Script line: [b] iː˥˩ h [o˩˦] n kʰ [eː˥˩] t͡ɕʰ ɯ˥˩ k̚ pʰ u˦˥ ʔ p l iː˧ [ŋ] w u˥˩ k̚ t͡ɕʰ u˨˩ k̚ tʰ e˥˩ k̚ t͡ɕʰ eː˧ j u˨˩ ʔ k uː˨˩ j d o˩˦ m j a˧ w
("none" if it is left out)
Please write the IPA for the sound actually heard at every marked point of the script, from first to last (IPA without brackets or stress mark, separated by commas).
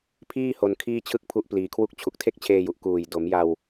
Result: pʰ, o˧, iː˥˩, kʰ